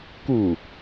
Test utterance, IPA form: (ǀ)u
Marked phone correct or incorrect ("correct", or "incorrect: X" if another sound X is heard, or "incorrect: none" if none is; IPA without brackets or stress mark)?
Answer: incorrect: k